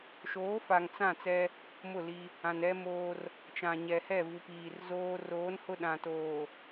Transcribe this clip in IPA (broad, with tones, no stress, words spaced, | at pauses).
ʃoː˨˦fa˨ŋ t͡sã˦˨ t͡sɛ˦ | mʊ˦˨li˦ | ã˨nɛ˦moː˦r | t͡ʃã˨ɲɛ˨hɛ˦˨ vu˨piː˨rzoː˦ roː˨˦n hʊ˦ɗã˨toː˨